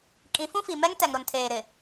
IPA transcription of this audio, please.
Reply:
kʼ ĩ˨˦ f ũ˦ f i˨ m ɛ˦ ŋ t ɛ˨ ŋ ɾ ʊ˨ n tʰ eː˨ ɾ ɪ˨

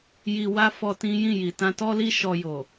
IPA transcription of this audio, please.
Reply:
j i˨ w a˧ f ɔ˧ t ĩ˦ j ĩ˦˨ j i˨ t ã˧ t ɔ˦ l i˦ ʃ ɔ˧ j o˨

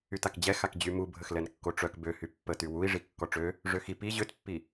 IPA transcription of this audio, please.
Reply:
y t a k d͡ʑ ɛ x a k d͡ʑ y m u bʱ ə x l ɛ n kː o ʈ͡ʂ œ k b ø h y pː ə t y w u i̯ ʐ i kː ɔ ʈ͡ʂ ø | ʐ ø x i p i ʑ ø t pː i

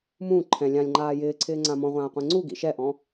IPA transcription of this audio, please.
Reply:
m ũː ǃʰ ɛ̃ lʲ ã lʲ ŋ͡ǃ aː j ɪː ǀʰ ɪː ŋ͡ǀ ã m ɔ̃ ʁʷ ãː qʷ ẽ ŋ͡ǀ u ɡ ḭ ʃ ɛ ʔ ɔ̃

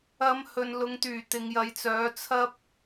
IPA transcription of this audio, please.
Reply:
ɐ˨˧ m h ɵ˨ n l ʊ˨˧ ŋ t̪ yː˨˩ t̪ ɪ˨ ŋ j ɐ˨˧ j t͡s œː˨˥ t͡sʰ ɐ˥ p̚

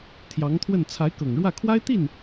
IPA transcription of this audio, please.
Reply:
t̪ʰ j ɑ˧˥ ŋ t̪ʰ w ə˥˩ n t͡sʰ a˧˥ ɪ̯ k ɤ˨˩ ŋ ɻ w ä˥˩ kʰ w a˥ ɪ̯ t̪ i˥˩ n

